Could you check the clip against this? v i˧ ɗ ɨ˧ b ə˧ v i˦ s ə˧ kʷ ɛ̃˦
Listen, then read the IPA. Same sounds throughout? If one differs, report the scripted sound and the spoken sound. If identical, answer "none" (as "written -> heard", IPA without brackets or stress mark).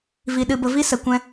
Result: none